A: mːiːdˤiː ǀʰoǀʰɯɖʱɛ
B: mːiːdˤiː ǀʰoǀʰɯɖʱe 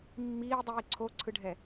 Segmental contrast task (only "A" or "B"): A